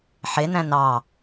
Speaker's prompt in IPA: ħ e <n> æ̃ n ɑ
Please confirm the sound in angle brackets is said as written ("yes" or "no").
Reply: yes